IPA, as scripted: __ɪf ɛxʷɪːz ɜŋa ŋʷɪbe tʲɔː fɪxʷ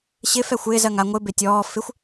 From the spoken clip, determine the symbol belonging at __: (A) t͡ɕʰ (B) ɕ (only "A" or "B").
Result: B